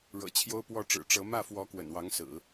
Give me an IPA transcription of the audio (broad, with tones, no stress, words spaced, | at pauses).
ɻɤ̰˨˩t͡ɕʰjo˥ʊ̯pwɔ˥˩ ʈ͡ʂɻ̩˨˩ʈ͡ʂɤ˧˥ mä˥˩fwɔ˧˥ kwə̰˨˩nwɑ˧˥ŋsɹ̩˨˩˦